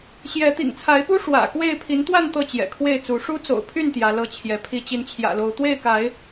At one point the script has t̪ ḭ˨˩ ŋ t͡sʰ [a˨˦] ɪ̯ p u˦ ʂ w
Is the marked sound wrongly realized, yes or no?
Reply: no